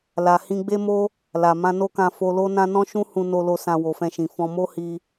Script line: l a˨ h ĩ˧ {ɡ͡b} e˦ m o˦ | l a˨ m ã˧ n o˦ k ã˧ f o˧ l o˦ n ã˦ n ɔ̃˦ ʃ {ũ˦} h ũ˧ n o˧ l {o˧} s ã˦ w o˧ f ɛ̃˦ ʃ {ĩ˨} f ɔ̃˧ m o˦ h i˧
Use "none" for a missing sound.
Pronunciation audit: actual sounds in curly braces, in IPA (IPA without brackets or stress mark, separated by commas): ɡ͡b, ũ˦, o˧, ĩ˧